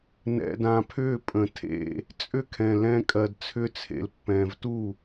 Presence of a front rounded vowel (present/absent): present